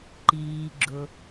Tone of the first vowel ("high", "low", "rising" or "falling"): low